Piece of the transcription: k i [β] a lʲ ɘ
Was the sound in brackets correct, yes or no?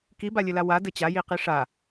no